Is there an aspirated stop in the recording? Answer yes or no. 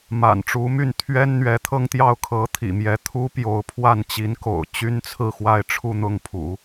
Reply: yes